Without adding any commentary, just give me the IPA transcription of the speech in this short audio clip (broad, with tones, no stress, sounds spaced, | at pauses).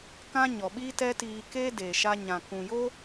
k ã˦ ɲ ɔ˨ ɓ iː˦ t ɛ˦ t iː˧ k e˦ d eː˨ ʃ a˧ ɲ ã˨ k ũ˨ j o˦